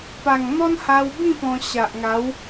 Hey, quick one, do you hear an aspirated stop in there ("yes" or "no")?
no